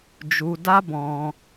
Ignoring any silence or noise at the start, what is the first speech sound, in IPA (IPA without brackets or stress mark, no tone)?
d͡ʒ